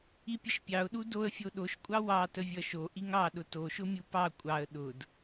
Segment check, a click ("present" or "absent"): absent